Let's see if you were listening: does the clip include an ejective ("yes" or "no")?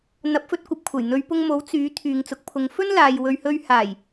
no